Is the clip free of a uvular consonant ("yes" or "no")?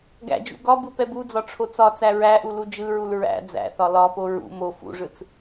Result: yes